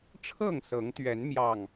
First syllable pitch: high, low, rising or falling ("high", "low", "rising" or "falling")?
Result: falling